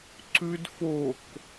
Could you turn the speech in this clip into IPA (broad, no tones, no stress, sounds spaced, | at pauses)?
ǀ ʉ d f o k